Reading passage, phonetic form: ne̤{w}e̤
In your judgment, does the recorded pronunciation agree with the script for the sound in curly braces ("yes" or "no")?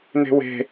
yes